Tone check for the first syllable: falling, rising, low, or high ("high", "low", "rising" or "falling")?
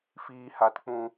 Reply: high